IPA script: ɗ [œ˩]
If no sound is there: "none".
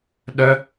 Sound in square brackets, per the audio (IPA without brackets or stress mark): œ˩